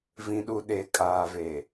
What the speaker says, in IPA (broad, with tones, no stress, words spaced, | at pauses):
vĩ˨ɗu˨ɗe˨ kʼaː˨ve˨